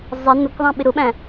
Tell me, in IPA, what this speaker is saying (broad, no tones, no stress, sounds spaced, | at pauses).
zˤ ɛ n ʊ k ðˤ ɛ̃ ɓ ɪ ɾ ʊ ɓ æ̃